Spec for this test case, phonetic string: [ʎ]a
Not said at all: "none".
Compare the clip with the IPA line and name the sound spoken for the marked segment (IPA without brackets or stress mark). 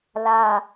l